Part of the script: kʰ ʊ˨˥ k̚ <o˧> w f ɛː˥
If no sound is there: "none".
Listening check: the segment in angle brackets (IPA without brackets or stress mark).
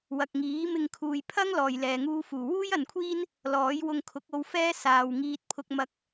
o˧